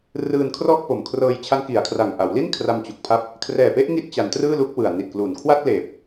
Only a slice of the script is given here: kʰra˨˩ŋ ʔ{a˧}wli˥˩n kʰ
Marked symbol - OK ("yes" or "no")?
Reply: no